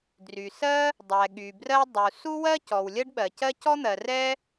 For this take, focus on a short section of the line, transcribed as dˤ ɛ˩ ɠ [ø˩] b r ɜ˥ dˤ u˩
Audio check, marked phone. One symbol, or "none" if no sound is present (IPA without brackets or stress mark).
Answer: y˩